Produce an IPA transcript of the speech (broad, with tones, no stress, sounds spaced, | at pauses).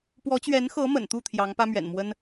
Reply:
p w ɔ˧˥ t͡ɕ ɥ ɛ˧˥ n x ɤ˧˥ m ə̰˨˩ n t̪ u˥˩ t̪ʰ j ɑ˧˥ ŋ p ä˥ m ɥ ɛ̰˨˩ n m w ə˥ n